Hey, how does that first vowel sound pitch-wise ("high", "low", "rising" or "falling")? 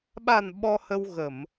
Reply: low